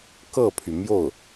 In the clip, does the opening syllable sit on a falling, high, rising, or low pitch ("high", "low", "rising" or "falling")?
falling